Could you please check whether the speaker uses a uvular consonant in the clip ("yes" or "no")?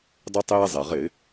yes